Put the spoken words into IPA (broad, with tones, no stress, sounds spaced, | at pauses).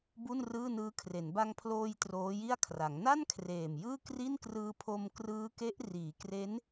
b u˥˩ n r ɯː˥˩ n ɯː˦˥ kʰ r e˩˦ n b a˧ ŋ pʰ l oː˧ j t r oː˦˥ j i˥˩ a̯ kʰ r a˩˦ ŋ n a˥˩ n kʰ r eː˨˩ m j ɯː˥˩ k r i˥˩ n k r ɯː˧ pʰ o˧ m k r ɯː˦˥ k e˦˥ ʔ r iː˩˦ k r e˦˥ n